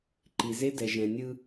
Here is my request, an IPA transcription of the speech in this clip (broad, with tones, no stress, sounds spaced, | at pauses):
ǃ i˨ z e˦ d ɛ˨ ʒ ɛ̃˨ nʲ ɯ˦